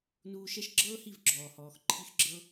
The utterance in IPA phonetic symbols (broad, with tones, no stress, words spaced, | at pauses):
nuː˧ʃɛ˦ʃɡ͡ǁɤː˦hi˦˨v ɡ͡ǁɔː˨hɔː˨x ǃʰi˦xɡ͡ǁɤ˦